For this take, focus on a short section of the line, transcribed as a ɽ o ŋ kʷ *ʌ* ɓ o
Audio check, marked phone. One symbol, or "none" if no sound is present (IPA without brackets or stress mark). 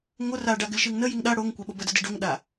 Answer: a